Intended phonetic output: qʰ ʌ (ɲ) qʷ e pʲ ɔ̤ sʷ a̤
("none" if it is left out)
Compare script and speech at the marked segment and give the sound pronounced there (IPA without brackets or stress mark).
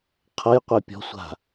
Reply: j